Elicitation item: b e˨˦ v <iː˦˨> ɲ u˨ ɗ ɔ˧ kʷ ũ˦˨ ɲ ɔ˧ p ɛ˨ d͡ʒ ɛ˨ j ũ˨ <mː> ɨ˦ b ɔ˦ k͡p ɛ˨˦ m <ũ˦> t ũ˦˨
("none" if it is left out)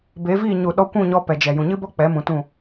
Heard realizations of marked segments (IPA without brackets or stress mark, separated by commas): iː˦˨, ɲ, ũ˧